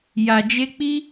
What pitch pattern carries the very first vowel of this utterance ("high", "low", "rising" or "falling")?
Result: low